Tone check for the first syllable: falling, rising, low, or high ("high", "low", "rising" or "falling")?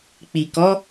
low